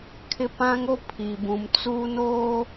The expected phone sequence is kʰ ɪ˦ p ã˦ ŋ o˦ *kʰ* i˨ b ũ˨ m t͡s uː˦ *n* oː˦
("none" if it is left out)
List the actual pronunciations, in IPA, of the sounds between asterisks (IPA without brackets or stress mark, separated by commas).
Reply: pʰ, n